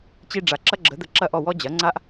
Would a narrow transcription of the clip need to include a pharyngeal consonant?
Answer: no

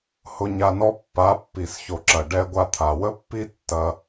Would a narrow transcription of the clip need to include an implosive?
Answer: no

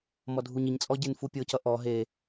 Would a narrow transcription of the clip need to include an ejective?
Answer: yes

